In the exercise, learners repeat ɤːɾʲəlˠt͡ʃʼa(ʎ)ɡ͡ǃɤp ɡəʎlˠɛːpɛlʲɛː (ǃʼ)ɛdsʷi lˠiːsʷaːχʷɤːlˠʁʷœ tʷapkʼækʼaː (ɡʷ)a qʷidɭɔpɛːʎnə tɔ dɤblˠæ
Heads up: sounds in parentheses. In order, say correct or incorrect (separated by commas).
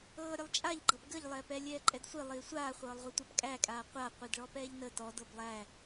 correct, correct, incorrect